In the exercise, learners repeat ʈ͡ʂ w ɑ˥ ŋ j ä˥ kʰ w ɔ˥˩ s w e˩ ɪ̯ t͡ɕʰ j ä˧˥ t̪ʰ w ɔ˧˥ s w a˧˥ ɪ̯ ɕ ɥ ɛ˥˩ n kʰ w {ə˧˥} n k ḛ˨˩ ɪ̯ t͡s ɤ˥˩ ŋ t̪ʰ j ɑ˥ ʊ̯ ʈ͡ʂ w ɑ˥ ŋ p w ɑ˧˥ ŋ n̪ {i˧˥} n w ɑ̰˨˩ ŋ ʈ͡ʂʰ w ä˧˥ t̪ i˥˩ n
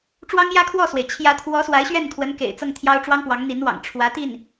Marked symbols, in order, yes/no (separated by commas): yes, yes